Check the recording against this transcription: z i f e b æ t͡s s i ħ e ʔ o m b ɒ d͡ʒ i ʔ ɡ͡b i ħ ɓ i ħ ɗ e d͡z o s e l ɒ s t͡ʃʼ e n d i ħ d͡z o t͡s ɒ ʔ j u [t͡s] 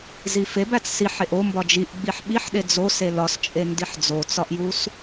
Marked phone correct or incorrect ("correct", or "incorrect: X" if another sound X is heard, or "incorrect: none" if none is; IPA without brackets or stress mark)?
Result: incorrect: s